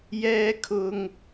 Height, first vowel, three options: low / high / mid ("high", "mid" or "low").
mid